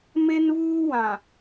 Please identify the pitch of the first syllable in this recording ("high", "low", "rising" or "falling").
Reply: high